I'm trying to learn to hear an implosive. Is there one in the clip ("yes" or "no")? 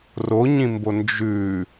no